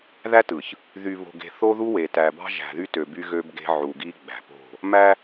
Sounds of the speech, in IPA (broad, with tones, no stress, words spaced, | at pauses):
ðæ˦tɯ˨ç | ðy˨βo̤˨ɡe̤˨ θo˦ðu˦we˨ tæ˨bɑ̤˦ ʒæ̤˨ðy˦tø˨ by˦ɣø˦bɡe̤˦ ʕu˨ɡi˦ ɡ͡bæ̤˨po̤˦˨ | mæ˦